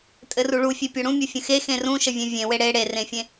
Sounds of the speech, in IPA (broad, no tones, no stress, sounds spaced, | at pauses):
tʼ ɘ r u ɭ u fʲ e pʲ o ɽ ũ mʲ o fʲ ə̃ x e x ẽ r ũ ʃ ə vʲ ẽ vʲ ẽ w e ɽ e ɽ e r ẽ fʲ ẽ